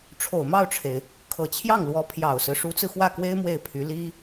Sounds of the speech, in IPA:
ʈ͡ʂʰ o˨˩ ʊ̯ m ɑ˥˩ ʊ̯ ʈ͡ʂʰ e˩ ɪ̯ | kʰ ɤ˨˩ t͡ɕʰ j ɑ˥˩ ŋ l w ɔ˧˥ pʰ j ɑ˨˩ ʊ̯ s ɹ̩˦ ʂ u˧˥ t͡s ɹ̩˧ x w ä˥˩ k w e˥ ɪ̯ m w e˥˩ ɪ̯ pʰ y˧˥ l i˥

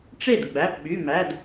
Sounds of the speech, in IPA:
ʈ͡ʂ e˥˩ d ɡ͡b æ˩˧˩ p ɓ y˩˧˩ m æ˩˧˩ d

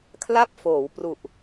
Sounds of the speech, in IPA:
kʰ l a˥˩ p̚ f oː˩˦ w p r u˨˩ ʔ

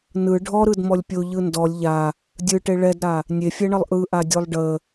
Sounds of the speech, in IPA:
n ɯ ɖʱ ɔ ɾ ɯ d m ɔ lʲ pʲ o ʎ ɯ n d ɔ lʲ ʎ a | dʲ ɯ ʈ e ɭ ɛ d ɾ a | nʲ e fʲ ɛ ɳ ə lˠ ʔ ɯ ʔ a dʲ o lˠ ɖ ə

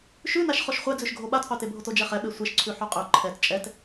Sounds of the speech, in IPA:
ʃ ʉ n a ʃ χ o ʃ χʷ ɛ d͡z ʉ ʃ ɡʱ o ɓ a t qʷ ɛ t e bʱ o t o d͡ʒ ɛ χ ɛ ɓ e sʷ e ʃ ǀʰ ʉ ħ o qʼ ʉ ǃʰ ɛ t t͡ʃʼ ɛ t

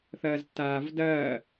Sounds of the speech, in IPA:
θ ɐː z tː aː v d ɐː

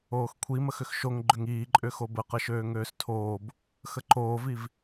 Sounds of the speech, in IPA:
oː x kʷʰ i m ə x ʏ x ʃ o ŋ ɡ͡ǃ ʏ ŋ iː ǃʼ ʏ x o b ə q ə ʃ øː ŋ øː s tʰ oː b | x ə ǃ oː v i v

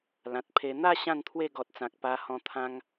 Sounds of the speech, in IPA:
l ã˨ t̚ pʰ e˧ n̪ a˥˧ ɕ ã˥˧ n t̪ʰ w e˥˧ ɡ ɔ˨ t̚ t͡s ã˨ k̚ p a˧ h ɔ̃˧ t̪ʰ ã˦ ŋ

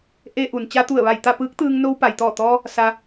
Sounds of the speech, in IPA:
ʔ e˧ ʔ u˩ n t͡ɕ a˧ t̪ u˧˩ ə̯ ʋ a˧˩ j t̪ a˥˨ p ɯː˧˥ k̚ t̪ ɯː˧ ŋ n o˧ w p a˩ j t̪ ɔː˧˩ t̪ ɔː˧ | s a˧

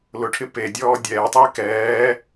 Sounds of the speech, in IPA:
l ʊ ʈʰ ɪ p e dʲ ɔː dʲ ɛː tˤ ɪː k ɛː

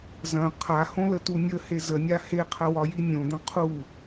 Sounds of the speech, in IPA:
z ɐ̃ qʰ a h õ l ə t u nʲ ə h e z ə nʲ a h e qʰ ɐ w ɒ j i nʲ õ d̪ ɐ̃ qʰ u

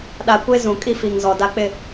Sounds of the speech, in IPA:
ɗ a˨˦ kʷ e˦ z ũ˨ kʼ i˦ f i˨ ŋ z ɔ˨ d a˦ k͡p ɪ˦˨

